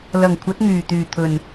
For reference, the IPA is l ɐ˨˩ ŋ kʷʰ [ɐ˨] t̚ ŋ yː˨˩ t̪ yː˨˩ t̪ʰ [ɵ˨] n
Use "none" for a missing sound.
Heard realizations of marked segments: ɐ˨˥, ɵ˨˩

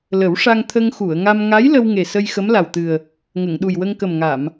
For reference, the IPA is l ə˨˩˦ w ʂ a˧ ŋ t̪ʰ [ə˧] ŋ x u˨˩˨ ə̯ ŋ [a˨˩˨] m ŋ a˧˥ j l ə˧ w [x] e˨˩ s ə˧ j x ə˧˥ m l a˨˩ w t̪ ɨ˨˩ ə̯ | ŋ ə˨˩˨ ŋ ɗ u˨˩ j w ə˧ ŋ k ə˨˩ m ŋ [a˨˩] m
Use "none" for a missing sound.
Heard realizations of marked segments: ə˧, a˧, ŋ, a˨˩˨

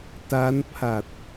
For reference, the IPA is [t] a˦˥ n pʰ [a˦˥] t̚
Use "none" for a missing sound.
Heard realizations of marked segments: t, a˨˩

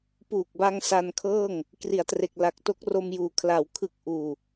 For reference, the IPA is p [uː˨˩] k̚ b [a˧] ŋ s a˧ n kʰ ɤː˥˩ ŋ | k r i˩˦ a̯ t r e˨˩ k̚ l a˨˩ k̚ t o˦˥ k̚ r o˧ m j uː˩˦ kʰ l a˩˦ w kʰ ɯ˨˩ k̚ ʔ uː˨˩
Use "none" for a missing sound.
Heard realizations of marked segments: uː˨˩, a˧

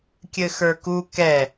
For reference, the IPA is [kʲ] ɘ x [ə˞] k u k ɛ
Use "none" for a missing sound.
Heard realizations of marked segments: kʲ, ə˞

